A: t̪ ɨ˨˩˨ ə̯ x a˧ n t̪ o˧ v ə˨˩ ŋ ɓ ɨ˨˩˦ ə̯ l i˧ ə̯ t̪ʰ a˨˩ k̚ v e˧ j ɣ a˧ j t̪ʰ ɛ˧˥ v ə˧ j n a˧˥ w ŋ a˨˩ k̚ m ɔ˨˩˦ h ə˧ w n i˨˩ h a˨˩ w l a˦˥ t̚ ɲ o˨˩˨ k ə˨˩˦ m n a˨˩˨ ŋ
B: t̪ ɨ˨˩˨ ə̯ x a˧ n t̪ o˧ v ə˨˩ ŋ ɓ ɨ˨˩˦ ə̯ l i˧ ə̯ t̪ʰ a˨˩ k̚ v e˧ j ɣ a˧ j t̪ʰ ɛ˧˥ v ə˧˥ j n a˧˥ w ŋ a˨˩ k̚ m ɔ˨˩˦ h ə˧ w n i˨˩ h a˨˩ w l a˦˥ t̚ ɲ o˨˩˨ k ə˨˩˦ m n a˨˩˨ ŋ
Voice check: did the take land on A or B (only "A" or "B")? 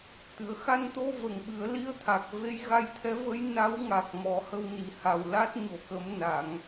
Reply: B